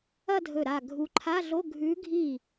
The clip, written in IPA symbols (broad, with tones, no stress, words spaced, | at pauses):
ɐ˥˧dʱɵ˧˩ɾa˧˩ ɡʱu˨˦ǃʰa˧˥˧ɮo˧˥˧ ɡʱʉ˨˦ɡʱi˧˩